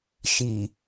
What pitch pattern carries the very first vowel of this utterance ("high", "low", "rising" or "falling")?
low